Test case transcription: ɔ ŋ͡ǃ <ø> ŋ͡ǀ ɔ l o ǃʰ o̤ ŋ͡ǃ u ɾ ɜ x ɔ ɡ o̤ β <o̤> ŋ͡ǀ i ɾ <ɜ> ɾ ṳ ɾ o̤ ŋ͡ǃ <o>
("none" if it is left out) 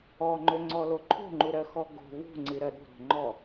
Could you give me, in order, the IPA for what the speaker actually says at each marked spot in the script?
ø, ṳ, ɜ, ɔ

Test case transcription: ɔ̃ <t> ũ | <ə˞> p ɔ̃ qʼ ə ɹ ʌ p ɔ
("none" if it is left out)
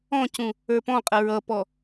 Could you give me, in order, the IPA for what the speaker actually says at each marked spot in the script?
c, ə˞

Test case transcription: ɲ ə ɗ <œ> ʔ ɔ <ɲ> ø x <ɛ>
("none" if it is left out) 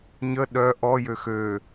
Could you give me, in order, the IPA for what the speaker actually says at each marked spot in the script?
œ, j, ø

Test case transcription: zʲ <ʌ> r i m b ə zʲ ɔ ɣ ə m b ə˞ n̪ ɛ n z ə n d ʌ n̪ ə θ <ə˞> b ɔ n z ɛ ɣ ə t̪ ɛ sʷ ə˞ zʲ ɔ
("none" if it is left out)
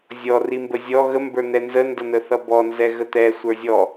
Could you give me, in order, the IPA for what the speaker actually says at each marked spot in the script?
ɔ, ʌ

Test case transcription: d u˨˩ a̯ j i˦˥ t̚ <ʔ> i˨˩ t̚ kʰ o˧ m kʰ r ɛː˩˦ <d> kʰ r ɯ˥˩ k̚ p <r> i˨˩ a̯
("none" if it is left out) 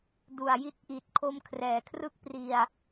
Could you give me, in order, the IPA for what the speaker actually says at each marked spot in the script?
ʔ, none, r

